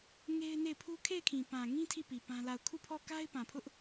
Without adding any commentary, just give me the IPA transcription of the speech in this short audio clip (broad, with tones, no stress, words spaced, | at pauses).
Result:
ŋe˦ɪ̯ne˦˨ɪ̯pʰu˦ kʰe˦˨ɪ̯kʰĩ˨pã˨ŋĩ˦ tʰi˦˨pi˨ pã˦la˦˨ʊ̯ kʰu˦˨pʰɔ˦˨ka˦ɪ̯ pã˨pʰʊ˦ʔ